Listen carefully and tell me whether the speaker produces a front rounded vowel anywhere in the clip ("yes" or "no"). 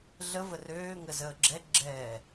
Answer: yes